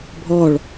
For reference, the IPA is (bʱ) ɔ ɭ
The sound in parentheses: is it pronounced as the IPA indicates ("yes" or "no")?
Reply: yes